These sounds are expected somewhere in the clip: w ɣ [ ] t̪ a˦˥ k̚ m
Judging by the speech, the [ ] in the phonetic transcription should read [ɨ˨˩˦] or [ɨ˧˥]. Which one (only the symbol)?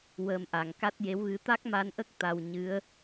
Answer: ɨ˧˥